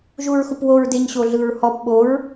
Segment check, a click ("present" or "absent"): absent